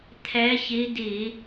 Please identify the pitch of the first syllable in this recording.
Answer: rising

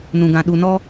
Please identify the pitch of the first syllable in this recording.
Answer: low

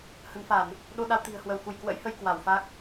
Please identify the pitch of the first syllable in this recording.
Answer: rising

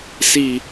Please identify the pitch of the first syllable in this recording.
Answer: low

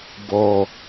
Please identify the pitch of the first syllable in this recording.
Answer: low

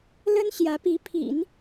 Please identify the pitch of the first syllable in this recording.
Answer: high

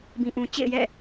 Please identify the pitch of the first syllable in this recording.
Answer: low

